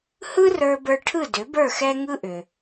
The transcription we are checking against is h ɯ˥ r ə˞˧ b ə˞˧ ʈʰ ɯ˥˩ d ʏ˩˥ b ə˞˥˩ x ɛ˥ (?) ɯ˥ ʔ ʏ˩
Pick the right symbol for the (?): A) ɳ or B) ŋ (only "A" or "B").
B